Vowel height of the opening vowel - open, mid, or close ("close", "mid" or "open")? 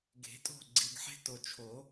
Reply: mid